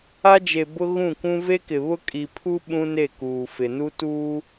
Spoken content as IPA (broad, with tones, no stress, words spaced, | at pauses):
a˦d͡ʒe˨bʊ˦ ɣũ˦˨kʷũ˦ ve˦kɪ˨ βʊ˦kʼi˨pʰu˦ ɓũ˦ne˦˨ kuː˨fɪ˨nu˦ tuː˦